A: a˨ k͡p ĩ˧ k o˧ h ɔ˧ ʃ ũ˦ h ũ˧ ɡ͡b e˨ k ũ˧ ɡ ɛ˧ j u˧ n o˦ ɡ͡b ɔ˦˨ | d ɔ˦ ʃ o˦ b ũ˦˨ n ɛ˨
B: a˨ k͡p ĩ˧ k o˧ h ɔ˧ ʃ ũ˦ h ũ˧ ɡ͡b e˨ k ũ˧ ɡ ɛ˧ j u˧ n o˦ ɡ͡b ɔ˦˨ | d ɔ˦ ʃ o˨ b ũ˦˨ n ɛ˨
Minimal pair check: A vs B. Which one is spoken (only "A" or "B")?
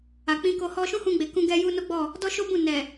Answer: A